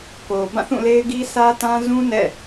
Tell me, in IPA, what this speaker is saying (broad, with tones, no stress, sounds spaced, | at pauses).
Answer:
k o˨ b ã˦˨ θ ũ˦˨ l e˦ ɪ̯ ɡ i˦ s ä˦ t ã˦ z ũ˦ n ɛ̰˦˨